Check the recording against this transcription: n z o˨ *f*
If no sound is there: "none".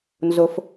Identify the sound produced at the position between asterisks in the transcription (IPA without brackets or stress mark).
f